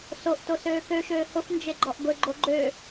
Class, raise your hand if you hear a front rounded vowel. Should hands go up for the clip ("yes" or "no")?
yes